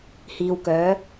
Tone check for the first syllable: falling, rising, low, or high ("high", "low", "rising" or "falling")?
low